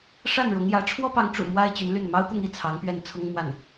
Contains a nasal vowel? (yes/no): no